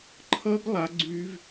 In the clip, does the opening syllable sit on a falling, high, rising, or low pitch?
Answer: high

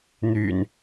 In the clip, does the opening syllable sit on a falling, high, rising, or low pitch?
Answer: low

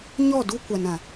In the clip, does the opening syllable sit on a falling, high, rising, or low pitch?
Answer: falling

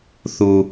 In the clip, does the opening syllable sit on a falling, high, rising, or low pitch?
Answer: low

